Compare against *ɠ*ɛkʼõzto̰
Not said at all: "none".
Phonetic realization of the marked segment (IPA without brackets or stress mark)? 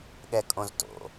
ɠ